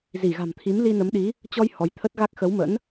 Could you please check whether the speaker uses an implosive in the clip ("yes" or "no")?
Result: yes